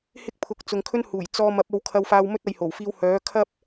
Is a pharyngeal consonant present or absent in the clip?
absent